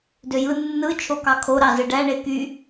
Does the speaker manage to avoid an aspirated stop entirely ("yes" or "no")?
no